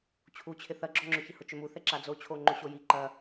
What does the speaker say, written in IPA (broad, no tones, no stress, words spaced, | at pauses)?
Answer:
t͡ɕʰut͡ɕʰɪ θɐɡ͡ǁɔŋ͡ǁʏçɪ hʊt͡ʃʏmu θɛǁad͡zo t͡ɕʰoŋ͡ǃʏɕoji ǃɐ